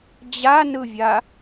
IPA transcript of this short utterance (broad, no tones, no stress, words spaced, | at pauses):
d͡ʑanɯvʲa